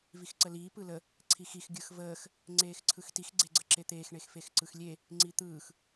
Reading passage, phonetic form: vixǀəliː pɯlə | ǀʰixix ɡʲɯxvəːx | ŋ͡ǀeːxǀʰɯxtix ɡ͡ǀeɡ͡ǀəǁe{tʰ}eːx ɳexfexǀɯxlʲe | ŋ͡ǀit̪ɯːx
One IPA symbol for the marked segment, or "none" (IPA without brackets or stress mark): t̪